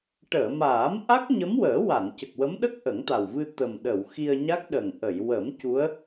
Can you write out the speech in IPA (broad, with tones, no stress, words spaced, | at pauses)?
ʈəː˨˩˨maː˨˩˦m ʔa˦˥k̚ɲə˧˥mwəː˨˩˦ wa˨˩˨ncə˨˩k̚wə˧˥mɗə˦˥k̚ ʔə˨˩˦ŋt̪a˨˩wvɨ˧ t̪ə˨˩mɗə˨˩˨w xi˧ə̯ɲa˦˥k̚ɗə˨˩ŋ ʔə˨˩˨jwə˨˩˦m cu˧˥ə̯